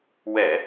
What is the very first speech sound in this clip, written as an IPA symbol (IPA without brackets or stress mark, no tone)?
w